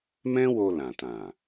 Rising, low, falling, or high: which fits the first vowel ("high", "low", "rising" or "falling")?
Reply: high